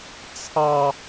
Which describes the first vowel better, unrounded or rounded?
unrounded